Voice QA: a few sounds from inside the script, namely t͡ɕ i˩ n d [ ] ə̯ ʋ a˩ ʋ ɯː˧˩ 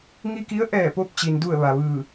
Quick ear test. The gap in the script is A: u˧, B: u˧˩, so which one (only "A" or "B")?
B